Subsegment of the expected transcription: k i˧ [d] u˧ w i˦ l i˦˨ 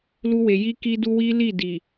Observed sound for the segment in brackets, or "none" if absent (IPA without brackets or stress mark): d